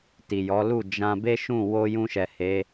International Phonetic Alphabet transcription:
ti˨jɔ˨˦lu˦˨ d͡ʒã˧be˦ʃũ˦˨ wo˧jũ˧ʃɛ˨ he˨˦

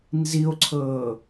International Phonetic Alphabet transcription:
nzio̯ǀʰɤː

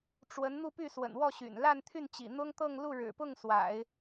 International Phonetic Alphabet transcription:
ʈ͡ʂwə˧˥n n̪u˥˧py˥˩swə̰˨˩n wɔ˥˩ ɕy̰˨˩n la˥˧nt̪ʰy˥˩n t͡ɕḭ˨˩n̪ʊ˥ŋt̪ɤ˥˧ŋ lu˥˩ɻɻ̩˨˩pʊ˥˩ŋ swa̰˨˩˦ɪ̯

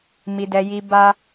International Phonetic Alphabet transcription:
mi˧dɛ˧ ji˧ ba˦

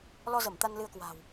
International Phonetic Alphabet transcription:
lɔ˧zə˧˩m t̪a˧nlɨ˧ə̯kwa̤ː˨˩w

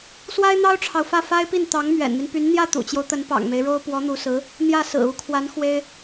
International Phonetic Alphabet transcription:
swa˥ɪ̯n̪ɑ˥ʊ̯ʈ͡ʂʰɑ˨ʊ̯fä˥˩ fa˥ɪ̯pi˥˩n t̪ɑ˧˥ŋmɥɛ̰˨˩nmi˦npy˧˥n n̪jä˥˩t̪ṵ˨˩t͡ɕjo˦ʊ̯t̪ə˧˥n pɑ̰˨˩ŋme˦ɪ̯ɻo˥ʊ̯ pwɔ˧˥n̪u˧˥sɹ̩˧˥ | n̪jä˥˩ sɹ̩˨˩u˧˥kʰwa˧˥n xwe˥ɪ̯

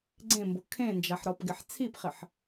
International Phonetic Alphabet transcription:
ɡ͡ǀẽmbʊ kʰẽnd͡ʒaħɾɔpɡɪħ t͡sʰipχɪħ

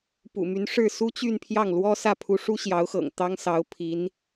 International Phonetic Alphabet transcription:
pṵ˨˩my˧˥n ʂɻ̩˥˩ su˥t͡ɕy˥˧npʰjɑ˥˩ŋlwɔ˥ sä˥˩pʰu˧˥ ʂu˥ ɕjɑ˧˥ʊ̯xɤ̰˨˩ŋ t̪ɑ˥ŋsɑ˧˥ʊ̯pʰi˧˥n

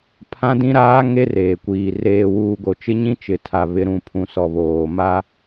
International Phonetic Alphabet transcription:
pʰã˦dĩ˦ɾaː˦ ŋe˦reː˨kʷiː˨ reː˨wuː˨ɡo˨ t͡ʃɪ˦ɲĩ˦ t͡ʃɪ˨tʰa˨ βɪ˨˦ɾũ˨pʰũ˨sɔ˨ βoː˨ ma˦

